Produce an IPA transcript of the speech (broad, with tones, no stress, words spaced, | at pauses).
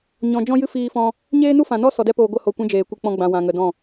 ɲɔ̃˧ d͡ʒɔ̃˦ jɨ˦fiː˧fɔ̃˧ | ɲeː˦nu˦fã˨nɔ˦ sɔ˨dɛ˧poː˨ ɡʷə˦˨ ho˦˨ kʷɛ̃˦d͡ʒeː˨ kʷɨ˧k͡pɔ̃˦ ɡ͡bã˧wã˧ŋə˧dɔ̃˦˨